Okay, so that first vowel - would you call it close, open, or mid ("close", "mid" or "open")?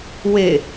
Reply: mid